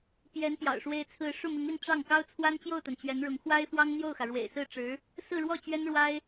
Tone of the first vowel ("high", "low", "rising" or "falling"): rising